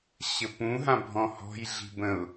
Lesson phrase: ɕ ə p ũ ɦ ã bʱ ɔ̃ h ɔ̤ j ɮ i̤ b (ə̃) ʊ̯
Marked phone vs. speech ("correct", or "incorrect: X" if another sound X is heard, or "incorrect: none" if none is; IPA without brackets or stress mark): correct